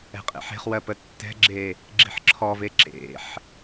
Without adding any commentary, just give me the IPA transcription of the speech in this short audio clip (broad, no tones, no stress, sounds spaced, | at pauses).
ɛ̤ qʼ ḛ ħ e̤ χ w ɜ p ə tː ɛ̤ ɡ͡ǁ e | ɡ͡ǁ i̤ ħ ǁʰ ɔ v e ǁ ḛ ħ